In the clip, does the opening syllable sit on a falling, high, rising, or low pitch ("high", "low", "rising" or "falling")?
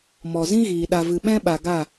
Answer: low